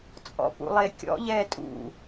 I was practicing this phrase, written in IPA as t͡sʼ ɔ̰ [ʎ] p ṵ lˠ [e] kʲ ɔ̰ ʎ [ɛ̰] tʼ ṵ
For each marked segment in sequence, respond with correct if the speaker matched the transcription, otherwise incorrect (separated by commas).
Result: incorrect, correct, incorrect